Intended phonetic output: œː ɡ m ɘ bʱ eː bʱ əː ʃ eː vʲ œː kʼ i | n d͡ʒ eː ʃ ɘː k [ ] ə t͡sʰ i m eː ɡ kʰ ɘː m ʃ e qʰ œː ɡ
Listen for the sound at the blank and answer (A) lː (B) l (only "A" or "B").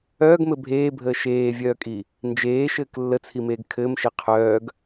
A